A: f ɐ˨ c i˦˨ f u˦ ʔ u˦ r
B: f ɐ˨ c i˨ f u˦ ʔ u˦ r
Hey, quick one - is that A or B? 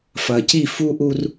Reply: A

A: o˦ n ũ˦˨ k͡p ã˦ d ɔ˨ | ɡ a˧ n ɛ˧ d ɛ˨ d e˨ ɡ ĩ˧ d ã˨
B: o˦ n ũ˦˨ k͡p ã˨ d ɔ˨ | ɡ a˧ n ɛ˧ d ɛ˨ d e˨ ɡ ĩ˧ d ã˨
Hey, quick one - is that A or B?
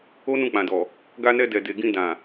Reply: B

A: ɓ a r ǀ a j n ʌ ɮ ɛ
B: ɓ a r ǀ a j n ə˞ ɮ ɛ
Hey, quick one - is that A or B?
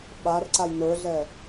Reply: B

